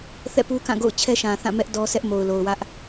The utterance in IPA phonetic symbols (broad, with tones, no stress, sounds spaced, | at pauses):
θ ɛ̰˦˨ p u˦ k ã˦˨ ɡ o̰˦˨ ʊ̯ t͡ɕʰ ɛ˦ ʃ ã˨ θ ã˦˨ m ɛ˦ ʔ d ɔ˦ sʰ ɛ˦ ʔ m o˨ ʊ̯ l o˨ ʊ̯ w ä˦ ʔ